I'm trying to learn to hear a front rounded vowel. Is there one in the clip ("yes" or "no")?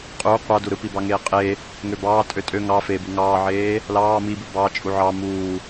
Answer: yes